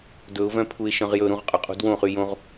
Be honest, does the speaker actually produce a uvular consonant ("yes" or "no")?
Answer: yes